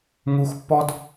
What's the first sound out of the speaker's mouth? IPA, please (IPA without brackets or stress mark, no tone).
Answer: ŋ